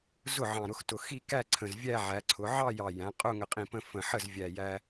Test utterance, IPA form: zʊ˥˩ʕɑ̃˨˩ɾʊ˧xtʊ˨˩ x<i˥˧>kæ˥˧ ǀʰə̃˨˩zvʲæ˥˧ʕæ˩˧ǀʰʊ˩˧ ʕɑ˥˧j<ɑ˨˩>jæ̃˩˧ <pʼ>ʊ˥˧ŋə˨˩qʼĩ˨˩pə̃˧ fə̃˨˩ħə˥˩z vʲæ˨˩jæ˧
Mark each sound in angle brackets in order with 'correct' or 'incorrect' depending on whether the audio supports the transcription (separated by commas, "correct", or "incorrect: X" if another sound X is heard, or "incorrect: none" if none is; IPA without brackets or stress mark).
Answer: correct, correct, incorrect: qʼ